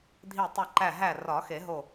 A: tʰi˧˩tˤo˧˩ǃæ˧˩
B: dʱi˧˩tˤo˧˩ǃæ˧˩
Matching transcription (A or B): B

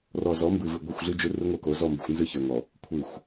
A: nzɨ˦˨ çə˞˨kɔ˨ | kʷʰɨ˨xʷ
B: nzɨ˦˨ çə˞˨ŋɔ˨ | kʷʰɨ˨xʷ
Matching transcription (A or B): B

